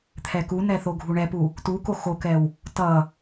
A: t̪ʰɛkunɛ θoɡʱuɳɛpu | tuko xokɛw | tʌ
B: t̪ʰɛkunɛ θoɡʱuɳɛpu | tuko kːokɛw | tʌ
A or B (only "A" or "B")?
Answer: A